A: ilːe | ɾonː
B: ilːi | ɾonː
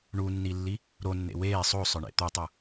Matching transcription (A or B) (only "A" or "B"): B